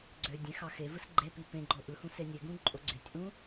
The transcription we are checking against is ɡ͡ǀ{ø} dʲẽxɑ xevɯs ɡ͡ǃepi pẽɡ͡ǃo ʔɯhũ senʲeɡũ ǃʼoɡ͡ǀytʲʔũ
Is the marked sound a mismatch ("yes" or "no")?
no